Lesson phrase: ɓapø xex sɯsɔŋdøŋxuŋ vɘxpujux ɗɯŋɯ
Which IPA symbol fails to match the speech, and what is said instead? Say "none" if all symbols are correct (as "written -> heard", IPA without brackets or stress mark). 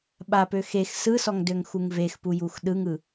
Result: ɘ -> e